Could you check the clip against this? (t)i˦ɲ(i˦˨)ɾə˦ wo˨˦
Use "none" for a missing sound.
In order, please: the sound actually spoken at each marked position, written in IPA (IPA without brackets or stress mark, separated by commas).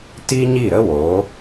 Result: t, i˦˨